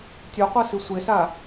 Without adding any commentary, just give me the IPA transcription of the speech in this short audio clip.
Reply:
tʲœqʷɤ sisʷesa

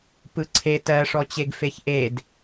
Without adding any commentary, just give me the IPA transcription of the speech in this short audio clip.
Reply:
pɯǀʰe tɜʂɔt͡ɕeɡ feçʔed

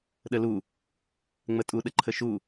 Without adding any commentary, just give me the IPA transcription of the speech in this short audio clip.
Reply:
ɗəlu | ŋ͡mətʼu ɗəǃʰəʃu

